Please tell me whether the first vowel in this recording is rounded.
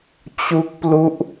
yes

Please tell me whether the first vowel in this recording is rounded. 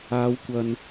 no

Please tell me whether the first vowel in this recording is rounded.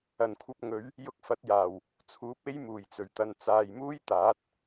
no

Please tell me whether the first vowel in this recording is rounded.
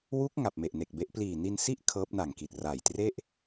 yes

